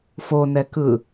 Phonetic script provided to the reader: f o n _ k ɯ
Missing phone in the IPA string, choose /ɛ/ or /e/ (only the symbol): ɛ